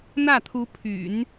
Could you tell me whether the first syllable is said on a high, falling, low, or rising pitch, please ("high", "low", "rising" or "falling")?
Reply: falling